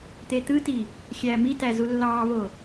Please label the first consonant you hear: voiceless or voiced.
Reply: voiceless